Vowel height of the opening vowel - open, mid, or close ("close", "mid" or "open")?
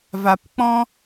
open